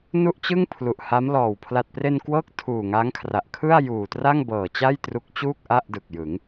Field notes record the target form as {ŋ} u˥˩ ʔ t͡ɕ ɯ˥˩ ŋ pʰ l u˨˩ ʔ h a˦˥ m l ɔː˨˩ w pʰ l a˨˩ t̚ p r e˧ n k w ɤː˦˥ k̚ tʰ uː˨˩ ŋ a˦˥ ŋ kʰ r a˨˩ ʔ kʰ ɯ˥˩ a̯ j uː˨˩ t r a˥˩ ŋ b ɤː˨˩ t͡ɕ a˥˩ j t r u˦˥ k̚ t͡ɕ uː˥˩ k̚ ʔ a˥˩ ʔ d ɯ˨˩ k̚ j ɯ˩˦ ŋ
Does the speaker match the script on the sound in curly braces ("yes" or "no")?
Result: no